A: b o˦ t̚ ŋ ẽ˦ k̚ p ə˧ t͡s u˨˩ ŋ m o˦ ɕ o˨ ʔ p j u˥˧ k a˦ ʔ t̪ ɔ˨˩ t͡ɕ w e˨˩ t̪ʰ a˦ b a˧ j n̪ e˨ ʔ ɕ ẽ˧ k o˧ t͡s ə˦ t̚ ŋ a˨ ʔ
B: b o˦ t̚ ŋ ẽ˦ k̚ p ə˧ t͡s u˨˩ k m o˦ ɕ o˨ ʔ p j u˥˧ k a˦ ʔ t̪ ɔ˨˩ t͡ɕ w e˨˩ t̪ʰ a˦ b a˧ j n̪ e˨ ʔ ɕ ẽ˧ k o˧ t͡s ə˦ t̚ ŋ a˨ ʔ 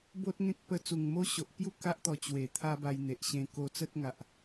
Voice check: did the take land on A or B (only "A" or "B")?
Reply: A